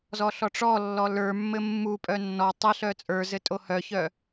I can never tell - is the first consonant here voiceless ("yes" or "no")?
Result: no